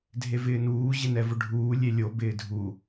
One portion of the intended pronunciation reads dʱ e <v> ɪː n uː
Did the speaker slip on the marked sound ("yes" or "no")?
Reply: no